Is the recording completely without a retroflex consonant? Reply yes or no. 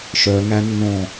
yes